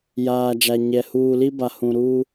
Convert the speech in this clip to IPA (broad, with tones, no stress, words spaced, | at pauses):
jaː˨d͡ʒa˨ ɲɛ˨ huː˨li˦ba˨ hũ˨ɾuː˦